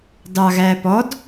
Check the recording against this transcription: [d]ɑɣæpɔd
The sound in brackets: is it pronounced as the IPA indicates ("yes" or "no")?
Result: yes